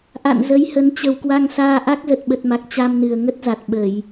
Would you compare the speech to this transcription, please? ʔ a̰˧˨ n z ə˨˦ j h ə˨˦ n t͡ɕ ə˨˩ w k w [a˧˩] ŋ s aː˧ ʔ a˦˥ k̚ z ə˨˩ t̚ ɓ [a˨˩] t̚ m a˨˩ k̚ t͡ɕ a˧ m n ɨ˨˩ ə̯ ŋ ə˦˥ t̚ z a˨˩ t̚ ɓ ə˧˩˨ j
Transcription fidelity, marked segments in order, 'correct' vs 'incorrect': incorrect: a˧, incorrect: ə˨˩

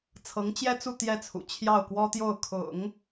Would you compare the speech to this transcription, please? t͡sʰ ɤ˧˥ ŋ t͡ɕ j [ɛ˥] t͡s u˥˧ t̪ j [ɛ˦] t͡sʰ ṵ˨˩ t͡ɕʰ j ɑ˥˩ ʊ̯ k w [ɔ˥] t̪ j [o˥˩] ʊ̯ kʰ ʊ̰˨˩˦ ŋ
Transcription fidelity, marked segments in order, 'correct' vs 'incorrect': correct, incorrect: ɛ˥˩, correct, correct

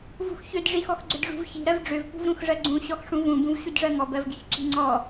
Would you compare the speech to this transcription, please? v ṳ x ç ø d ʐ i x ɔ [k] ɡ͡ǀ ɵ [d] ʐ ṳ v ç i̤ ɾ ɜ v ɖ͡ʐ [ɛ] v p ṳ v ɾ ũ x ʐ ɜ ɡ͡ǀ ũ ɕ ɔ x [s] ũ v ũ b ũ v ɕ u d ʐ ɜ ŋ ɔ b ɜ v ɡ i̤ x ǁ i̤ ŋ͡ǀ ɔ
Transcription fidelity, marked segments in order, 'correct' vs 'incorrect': incorrect: x, correct, incorrect: ø, incorrect: ʂ

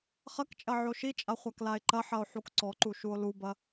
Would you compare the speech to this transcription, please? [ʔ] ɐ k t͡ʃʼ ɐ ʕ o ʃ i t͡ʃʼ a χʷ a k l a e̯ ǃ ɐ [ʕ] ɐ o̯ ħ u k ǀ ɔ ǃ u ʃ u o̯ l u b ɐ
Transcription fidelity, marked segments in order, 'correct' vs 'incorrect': incorrect: χ, incorrect: ħ

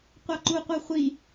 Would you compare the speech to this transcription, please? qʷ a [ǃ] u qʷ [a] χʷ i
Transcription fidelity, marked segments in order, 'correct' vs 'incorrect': correct, correct

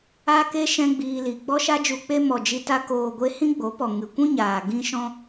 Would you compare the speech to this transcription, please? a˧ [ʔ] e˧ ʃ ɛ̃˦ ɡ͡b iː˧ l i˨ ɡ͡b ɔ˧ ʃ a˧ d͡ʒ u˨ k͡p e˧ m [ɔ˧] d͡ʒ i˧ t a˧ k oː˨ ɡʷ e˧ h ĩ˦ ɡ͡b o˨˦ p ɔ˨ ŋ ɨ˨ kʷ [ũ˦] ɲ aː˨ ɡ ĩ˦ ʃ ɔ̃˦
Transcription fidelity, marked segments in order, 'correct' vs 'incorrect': incorrect: k, incorrect: ɔ˨, correct

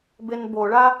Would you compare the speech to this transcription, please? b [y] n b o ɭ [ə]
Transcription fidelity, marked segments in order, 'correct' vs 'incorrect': incorrect: e, incorrect: a

